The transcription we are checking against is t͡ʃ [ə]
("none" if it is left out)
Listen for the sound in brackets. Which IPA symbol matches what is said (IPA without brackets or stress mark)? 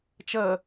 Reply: ə